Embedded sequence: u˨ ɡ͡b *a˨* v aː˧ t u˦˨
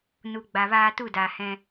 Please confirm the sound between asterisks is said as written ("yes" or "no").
yes